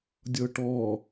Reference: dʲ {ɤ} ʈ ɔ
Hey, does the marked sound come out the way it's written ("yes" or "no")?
yes